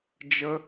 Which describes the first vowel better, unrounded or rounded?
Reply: unrounded